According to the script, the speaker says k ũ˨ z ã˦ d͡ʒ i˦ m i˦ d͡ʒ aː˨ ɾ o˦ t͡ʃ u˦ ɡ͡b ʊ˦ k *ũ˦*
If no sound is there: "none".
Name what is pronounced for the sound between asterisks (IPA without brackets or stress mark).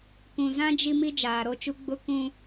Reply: ũ˦